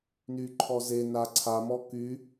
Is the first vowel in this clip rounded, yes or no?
yes